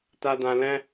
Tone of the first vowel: low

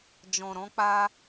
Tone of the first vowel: low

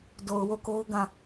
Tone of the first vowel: low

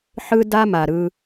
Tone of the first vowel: high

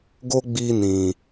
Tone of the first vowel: high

